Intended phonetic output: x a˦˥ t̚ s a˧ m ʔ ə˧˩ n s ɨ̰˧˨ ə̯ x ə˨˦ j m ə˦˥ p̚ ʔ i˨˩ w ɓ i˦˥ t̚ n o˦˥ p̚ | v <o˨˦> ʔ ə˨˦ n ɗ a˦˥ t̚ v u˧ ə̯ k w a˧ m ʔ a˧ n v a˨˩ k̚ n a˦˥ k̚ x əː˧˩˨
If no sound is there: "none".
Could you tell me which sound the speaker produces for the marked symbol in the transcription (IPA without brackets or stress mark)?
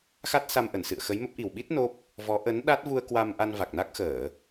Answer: ɔ˨˦